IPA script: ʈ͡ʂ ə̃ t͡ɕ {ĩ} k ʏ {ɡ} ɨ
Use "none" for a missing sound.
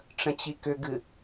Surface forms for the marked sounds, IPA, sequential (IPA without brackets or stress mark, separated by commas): i, ɡ